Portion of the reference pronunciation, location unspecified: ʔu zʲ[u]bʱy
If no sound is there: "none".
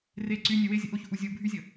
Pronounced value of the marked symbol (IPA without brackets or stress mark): u